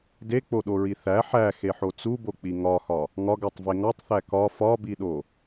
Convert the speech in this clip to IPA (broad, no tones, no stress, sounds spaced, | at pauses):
d e k͡p o ɗ o ɹ i θ æ ħ æ x e ħ o t͡s u b o k͡p i ŋ ɒ h ɒ | ŋ ɒ ɡ æ tˤ v e ŋ ɒ tˤ θ æ k ɒ f ɒ b i ɗ o